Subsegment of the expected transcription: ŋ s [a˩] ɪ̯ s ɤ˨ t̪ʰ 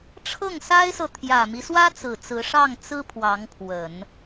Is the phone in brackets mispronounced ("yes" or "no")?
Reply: yes